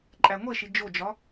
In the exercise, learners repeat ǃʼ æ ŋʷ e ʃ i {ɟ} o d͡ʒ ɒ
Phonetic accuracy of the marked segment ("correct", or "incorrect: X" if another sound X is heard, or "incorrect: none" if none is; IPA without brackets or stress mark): incorrect: d͡ʒ